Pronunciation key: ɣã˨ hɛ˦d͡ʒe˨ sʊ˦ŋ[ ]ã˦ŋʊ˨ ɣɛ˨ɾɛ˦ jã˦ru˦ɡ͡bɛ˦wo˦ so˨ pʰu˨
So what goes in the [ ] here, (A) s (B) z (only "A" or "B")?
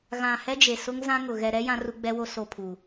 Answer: B